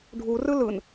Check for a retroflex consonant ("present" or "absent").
present